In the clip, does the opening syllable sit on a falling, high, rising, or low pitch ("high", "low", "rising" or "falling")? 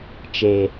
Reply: low